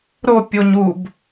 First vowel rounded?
yes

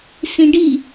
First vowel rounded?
no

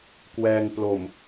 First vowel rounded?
no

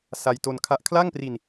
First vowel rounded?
no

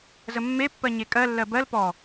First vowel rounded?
no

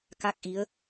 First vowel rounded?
no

